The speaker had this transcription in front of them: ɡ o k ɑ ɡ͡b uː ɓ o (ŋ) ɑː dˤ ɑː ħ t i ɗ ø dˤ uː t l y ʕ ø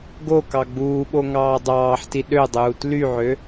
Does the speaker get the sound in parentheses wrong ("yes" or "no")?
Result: no